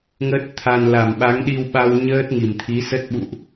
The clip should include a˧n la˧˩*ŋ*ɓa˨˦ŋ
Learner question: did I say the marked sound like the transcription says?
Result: no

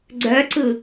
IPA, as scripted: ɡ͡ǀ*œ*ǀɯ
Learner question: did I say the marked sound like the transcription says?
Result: yes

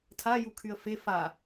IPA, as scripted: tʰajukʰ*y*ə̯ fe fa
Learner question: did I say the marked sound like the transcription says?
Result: yes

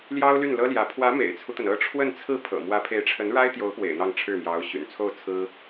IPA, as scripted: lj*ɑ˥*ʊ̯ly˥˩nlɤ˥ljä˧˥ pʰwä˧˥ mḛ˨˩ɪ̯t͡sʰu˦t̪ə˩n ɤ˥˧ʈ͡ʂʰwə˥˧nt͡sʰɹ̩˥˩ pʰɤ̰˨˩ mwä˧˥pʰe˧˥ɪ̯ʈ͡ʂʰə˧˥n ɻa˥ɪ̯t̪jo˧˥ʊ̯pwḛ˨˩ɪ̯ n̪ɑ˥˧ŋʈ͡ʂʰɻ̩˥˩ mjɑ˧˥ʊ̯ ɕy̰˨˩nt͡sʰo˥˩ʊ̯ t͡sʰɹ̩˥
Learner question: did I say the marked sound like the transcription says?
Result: yes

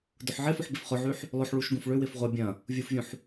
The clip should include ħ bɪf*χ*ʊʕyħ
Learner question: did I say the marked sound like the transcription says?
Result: yes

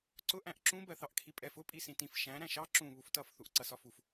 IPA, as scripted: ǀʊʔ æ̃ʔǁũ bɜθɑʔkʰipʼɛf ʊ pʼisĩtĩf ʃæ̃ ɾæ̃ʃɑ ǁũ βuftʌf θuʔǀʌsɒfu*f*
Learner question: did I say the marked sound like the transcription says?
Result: yes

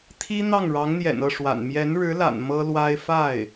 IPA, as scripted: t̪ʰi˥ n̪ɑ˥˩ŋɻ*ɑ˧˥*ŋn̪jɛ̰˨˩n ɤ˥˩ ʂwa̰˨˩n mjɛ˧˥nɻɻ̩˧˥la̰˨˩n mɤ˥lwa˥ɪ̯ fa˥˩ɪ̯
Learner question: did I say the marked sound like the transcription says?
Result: yes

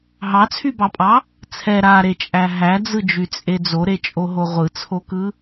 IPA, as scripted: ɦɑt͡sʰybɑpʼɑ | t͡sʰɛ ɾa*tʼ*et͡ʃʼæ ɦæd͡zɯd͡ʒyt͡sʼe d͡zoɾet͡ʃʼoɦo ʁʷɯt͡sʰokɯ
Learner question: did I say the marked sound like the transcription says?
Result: no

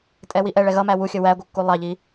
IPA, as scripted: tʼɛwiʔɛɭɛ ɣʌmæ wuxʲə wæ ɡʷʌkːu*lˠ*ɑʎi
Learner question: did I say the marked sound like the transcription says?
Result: yes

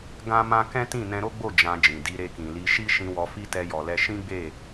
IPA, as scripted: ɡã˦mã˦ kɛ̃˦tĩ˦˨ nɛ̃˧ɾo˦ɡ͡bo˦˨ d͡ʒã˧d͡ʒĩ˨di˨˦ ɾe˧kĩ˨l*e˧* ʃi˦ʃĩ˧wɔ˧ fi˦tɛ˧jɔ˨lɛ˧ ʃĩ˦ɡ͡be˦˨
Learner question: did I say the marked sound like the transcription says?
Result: no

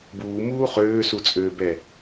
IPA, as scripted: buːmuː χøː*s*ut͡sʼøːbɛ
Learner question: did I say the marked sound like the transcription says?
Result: yes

